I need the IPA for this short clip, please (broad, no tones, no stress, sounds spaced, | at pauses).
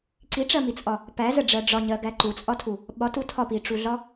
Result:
ǀ i ʈ͡ʂ ɜ m i t͡sʼ ɒ | p æ z ə ɖ͡ʐ ɜ ɖ͡ʐ ɒ ɲ ɜ ɡ æ ǃ u t͡sʼ ɒ tʰ u | ɓ ɒ t u tʰ ɒ p i ʈ͡ʂ u ɮ ɒ